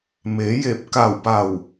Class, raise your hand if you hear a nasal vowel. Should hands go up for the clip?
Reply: no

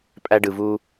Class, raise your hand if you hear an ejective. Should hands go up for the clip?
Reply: yes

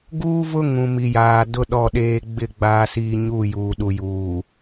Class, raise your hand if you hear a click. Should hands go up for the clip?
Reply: no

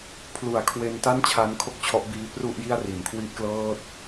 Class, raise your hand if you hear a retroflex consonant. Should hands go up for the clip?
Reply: no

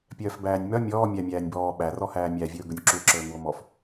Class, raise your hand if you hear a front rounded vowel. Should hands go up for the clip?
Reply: yes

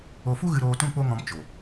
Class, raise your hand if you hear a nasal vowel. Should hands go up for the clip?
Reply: yes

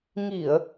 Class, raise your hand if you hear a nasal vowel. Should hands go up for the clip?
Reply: no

